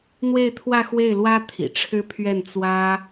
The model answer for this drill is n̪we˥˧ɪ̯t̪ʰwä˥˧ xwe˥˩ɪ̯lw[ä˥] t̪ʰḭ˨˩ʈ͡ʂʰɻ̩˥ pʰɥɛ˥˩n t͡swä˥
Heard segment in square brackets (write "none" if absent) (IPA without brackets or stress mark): ä˥